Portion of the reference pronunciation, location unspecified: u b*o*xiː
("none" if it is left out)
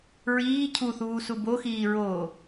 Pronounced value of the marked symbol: o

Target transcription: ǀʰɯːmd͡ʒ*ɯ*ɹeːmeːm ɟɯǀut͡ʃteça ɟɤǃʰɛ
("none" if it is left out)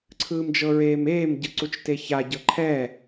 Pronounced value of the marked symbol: ɤ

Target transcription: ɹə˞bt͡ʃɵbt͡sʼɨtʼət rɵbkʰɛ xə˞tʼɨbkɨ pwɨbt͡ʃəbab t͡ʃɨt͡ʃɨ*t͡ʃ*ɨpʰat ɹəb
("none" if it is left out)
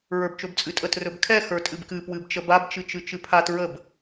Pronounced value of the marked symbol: t͡ʃ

